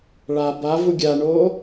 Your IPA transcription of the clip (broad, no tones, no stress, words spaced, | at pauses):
ɭa ba vuɡʲaɳoː